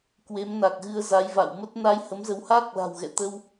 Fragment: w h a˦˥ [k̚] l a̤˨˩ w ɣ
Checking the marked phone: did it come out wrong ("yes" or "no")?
no